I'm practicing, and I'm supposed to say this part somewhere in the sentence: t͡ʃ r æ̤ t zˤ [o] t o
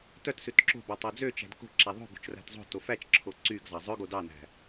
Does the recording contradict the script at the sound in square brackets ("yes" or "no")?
yes